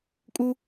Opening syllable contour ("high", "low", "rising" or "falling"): high